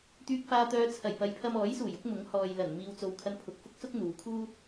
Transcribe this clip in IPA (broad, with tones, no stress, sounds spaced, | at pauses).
t̪ yː˨ k̚ f aː˨ t̪ œː˨˧ t͡sʰ ɐ˨˩ j p ɐ˨ j pʰ ɐ˧ m ɔː˨˥ j s uː˨˩ j ʊ˥ k̚ m ʊ˨˥ ŋ h ɔː˨ j l ɐ˨˩ n m iː˨ w t͡s o˨ w kʰ ɐ˧ n pʰ ʊ˨ k̚ f ʊ˥ k̚ s ʊ˥ k̚ n̪ uː˨˧ kʰ uː˥